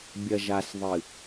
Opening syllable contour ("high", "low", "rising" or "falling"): low